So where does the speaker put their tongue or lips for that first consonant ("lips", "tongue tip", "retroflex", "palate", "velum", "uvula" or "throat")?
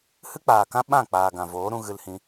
throat